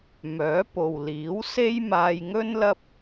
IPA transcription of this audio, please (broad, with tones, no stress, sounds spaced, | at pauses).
m œː˨˥ p o˨ w l iː˨˥ w s e˥ j m aː˧ j ŋ ɵ˥ n l ɐ˥ p̚